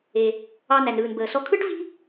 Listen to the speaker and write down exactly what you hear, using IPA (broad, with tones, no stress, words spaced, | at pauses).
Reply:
e˩ | ɑ˧ næ˩nɾɯː˩nbəː˩sɔ˧ kʰɯ˥ʈvi̤˥